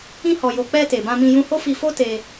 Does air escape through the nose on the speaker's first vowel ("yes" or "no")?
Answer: yes